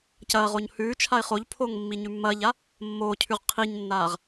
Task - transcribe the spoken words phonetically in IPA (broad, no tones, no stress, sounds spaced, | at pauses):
c ɐː ʁ o ɲ h ʉː t͡ʃʰ a ɪ̯ χ o ʎ pʰ oː ŋ mː i ɲ ʉ mː ɐː ʎ a | mː oː cʰ ʉ ʁ qʰ i ɲ nː aː ʁ